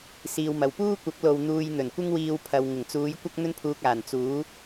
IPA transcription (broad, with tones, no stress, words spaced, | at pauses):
siː˧wmɐ˨w puː˥kʷɐ˨˥k̚lo˨w n̪uː˧jn̪ɵ˨˩nkʷɪ˥ŋwiː˧w pʰɐ˨w ŋɪ˨˩ŋt͡suː˨˧j kʷɐ˥k̚n̪ɵ˥npʰuː˧k̚aː˨˩n t͡suː˨˥